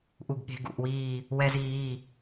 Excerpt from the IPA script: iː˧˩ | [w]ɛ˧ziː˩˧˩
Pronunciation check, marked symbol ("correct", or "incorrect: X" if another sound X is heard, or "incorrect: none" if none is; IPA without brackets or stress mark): correct